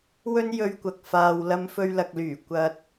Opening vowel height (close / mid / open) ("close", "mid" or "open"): mid